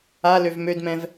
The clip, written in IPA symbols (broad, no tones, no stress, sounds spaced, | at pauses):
a l ø v m ø d m ɛ̃ v